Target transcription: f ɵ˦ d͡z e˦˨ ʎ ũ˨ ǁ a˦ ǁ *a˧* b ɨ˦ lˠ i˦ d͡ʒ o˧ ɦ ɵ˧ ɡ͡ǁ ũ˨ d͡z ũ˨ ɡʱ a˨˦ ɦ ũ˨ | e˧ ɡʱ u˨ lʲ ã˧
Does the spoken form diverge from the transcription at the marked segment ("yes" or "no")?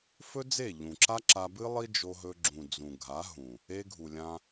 no